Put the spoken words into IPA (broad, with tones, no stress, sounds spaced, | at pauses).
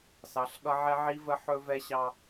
s ɑ˨˦ ɬ ɠ ʌ˦ ʕ ɛ˦ ʕ i˦ v ə˦ ħ ɵ˦ v ɛ˦ ɕ ɑ˦